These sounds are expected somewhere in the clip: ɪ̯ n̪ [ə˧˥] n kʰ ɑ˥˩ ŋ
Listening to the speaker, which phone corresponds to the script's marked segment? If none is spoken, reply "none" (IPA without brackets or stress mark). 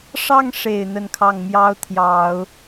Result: ə˥˧